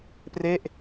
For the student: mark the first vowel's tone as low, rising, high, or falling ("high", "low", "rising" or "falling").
falling